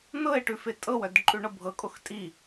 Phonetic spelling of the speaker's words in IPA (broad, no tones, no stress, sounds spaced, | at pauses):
n̪ ɤ e̯ ʈ ʉ f e tʼ ɤ w œ d ǃʼ ʉ ɳ ɤ bʱ ɤ kʼ o x tʼ i